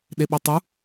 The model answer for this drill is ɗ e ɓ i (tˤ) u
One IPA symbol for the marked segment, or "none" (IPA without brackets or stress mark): tˤ